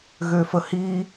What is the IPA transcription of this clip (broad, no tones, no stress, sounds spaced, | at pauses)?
ɣ ø f ə h i